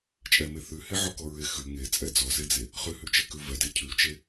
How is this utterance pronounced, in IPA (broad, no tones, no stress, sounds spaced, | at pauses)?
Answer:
t͡ʃʼ ɛ m e θ ʉ h e ʕ ɔ k ɔ ɹ e x ʉ ŋ e t͡sʼ ɛ d͡z ɔ s e d͡z e | χ ʉ h ʉ t͡ʃ e k ʉ v ɛ d e cʰ ʉ t͡ʃ e